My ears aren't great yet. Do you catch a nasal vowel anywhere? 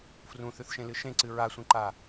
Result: yes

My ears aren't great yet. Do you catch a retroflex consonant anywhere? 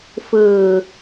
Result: no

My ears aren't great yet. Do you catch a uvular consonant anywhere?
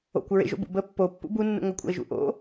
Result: no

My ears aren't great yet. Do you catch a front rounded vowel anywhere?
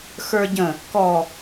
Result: no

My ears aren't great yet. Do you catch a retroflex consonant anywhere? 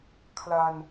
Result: no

